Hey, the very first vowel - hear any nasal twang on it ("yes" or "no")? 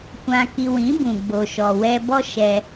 yes